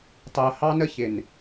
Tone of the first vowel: low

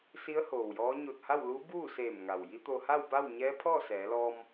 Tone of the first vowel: rising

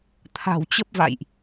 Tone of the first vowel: low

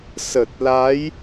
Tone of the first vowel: low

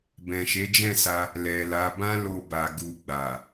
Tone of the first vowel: low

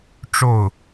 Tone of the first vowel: falling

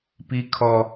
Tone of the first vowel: high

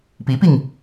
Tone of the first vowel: rising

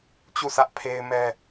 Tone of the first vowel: falling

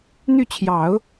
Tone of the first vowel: falling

